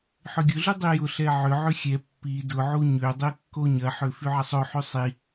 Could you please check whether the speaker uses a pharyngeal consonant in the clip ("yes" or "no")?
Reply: yes